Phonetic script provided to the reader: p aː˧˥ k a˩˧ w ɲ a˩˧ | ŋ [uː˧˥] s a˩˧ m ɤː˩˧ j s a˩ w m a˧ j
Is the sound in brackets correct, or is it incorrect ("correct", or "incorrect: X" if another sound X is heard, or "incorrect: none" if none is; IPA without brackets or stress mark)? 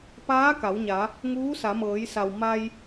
correct